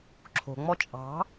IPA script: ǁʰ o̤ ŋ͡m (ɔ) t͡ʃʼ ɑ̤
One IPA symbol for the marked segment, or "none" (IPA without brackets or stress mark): ɔ